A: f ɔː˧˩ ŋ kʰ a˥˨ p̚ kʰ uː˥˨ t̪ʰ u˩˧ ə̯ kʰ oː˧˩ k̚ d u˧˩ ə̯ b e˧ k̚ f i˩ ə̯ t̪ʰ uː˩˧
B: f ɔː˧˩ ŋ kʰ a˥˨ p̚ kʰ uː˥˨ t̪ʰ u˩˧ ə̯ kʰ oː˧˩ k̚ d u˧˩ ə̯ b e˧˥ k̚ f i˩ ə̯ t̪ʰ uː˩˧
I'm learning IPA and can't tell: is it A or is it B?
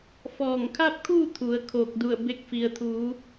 A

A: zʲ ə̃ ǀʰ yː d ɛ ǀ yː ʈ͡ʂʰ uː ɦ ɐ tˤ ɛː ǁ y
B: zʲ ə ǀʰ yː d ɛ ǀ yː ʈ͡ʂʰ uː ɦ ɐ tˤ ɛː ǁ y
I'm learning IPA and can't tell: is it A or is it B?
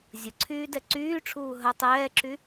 B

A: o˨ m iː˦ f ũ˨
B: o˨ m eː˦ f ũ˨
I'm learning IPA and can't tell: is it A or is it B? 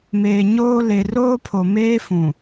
B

